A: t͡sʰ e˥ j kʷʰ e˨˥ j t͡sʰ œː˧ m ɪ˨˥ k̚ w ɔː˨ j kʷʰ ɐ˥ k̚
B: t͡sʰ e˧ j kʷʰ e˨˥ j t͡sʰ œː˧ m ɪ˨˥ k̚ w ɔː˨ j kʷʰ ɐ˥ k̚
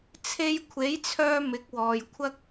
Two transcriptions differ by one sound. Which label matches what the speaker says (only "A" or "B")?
B